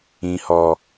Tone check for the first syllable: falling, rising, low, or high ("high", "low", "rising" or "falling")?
high